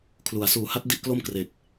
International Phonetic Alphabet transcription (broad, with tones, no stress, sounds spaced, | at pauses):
kʰ l u˩˦ a̯ s uː˨˩ h a˦˥ t̚ d i˥˩ ʔ k l o˥˩ m k r e˨˩ k̚